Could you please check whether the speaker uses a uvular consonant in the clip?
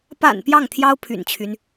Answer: no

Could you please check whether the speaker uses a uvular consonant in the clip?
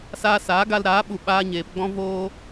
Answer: no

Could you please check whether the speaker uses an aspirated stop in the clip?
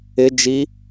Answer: no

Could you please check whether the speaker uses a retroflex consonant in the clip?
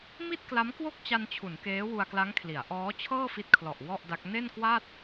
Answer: no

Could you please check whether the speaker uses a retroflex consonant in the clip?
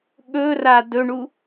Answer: yes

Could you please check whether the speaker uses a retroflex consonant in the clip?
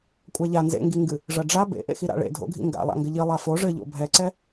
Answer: yes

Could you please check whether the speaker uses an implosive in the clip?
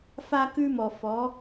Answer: no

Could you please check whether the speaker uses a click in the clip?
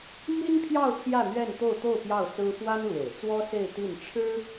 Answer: no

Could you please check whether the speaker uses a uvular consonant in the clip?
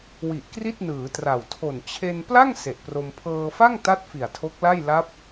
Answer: no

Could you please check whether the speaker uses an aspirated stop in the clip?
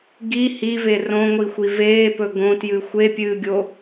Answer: no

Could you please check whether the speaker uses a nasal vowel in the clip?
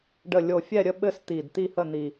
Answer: no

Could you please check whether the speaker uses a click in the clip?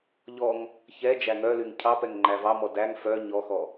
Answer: yes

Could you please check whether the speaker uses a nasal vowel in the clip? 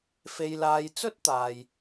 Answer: no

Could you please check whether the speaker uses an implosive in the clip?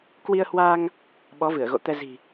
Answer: yes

